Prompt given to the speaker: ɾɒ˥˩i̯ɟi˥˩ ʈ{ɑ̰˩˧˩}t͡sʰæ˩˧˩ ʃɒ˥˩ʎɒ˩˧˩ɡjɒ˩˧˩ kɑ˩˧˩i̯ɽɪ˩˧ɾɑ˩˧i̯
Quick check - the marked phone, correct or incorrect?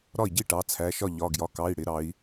incorrect